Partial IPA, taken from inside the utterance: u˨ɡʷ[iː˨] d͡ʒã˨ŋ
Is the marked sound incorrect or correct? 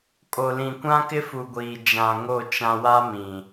correct